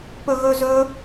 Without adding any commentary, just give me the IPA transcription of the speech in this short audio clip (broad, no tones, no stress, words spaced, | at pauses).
pɵɣɵzɵ